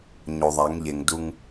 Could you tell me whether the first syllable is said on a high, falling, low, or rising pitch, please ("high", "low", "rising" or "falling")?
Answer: low